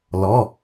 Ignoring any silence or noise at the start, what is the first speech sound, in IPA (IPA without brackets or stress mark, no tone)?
l